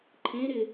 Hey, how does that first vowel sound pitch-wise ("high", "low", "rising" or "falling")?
rising